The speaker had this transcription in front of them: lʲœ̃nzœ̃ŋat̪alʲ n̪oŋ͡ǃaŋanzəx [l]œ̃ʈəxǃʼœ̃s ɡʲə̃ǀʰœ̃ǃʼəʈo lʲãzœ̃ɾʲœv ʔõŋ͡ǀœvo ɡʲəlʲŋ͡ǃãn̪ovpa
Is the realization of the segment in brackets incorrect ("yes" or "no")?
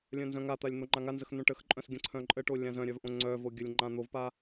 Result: yes